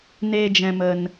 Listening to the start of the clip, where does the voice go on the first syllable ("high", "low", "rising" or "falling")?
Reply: low